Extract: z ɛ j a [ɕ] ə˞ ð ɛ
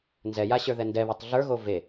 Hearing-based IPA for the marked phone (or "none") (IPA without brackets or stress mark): ɕ